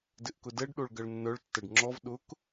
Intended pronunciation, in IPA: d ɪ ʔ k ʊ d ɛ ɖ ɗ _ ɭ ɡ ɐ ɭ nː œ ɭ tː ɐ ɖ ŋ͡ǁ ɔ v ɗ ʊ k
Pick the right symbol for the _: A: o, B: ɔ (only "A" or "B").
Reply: A